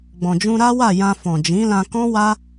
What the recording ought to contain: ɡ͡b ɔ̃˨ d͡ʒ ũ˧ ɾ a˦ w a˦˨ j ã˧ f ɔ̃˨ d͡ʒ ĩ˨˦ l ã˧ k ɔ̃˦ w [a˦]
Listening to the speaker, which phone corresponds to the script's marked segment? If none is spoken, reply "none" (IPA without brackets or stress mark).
a˦